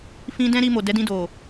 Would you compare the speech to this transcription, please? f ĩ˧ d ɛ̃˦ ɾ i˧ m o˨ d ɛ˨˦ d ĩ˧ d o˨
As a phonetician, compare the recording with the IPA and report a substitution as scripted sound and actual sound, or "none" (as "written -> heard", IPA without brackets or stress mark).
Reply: none